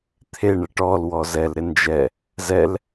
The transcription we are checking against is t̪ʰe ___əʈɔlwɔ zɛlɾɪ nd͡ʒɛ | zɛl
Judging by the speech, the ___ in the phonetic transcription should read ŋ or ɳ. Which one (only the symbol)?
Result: ɳ